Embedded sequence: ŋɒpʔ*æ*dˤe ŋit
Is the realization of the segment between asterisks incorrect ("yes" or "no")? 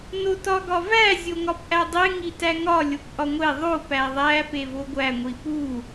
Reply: no